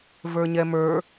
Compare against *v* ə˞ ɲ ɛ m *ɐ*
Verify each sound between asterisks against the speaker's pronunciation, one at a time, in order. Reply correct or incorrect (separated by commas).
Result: correct, incorrect